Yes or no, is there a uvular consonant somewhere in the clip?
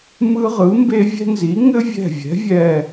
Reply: yes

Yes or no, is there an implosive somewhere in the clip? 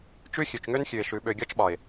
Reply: yes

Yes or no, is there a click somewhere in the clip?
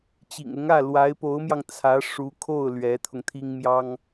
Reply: no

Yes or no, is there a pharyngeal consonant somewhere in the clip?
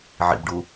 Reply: yes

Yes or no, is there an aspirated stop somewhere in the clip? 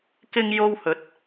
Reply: no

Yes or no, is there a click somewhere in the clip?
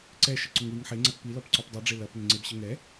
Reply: yes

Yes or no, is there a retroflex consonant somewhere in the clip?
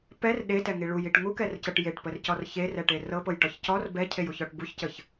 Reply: yes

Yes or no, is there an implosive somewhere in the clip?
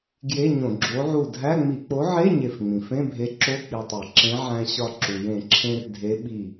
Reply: yes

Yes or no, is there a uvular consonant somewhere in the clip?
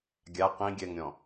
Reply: yes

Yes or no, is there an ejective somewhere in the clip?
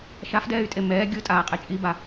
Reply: yes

